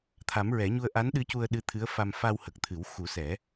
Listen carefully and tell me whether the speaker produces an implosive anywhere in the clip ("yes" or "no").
yes